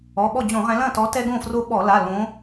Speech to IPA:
ɔ˩˧˩ɓɔ˥˩d͡ʑõ˧˩˧ʁɛ̃˨˦ lɐ̃˥˩tɔ˨˦ tɛ˦ɡõ˥˩fro˦ ɓɔ˧˩˧la˩˧˩ lõ˨˦

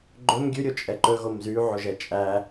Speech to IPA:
ɡ͡ǃɵm ɡʲʉɾʲot͡ʃʼɛ ǃɵɣom zyʕoʒɛ t͡ʃʼæ

